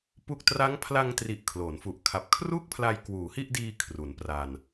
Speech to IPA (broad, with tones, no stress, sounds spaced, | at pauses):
p u˥˩ k̚ t r a˦˥ ŋ pʰ l a˧ ŋ t r i˨˩ ʔ kʰ l o˩˦ n f u˨˩ ʔ kʰ a˨˩ p̚ kʰ r u˥˩ k̚ pʰ l a˧ j k w uː˩˦ h i˥˩ ʔ d iː˧ kʰ r u˩˦ n p r a˧ n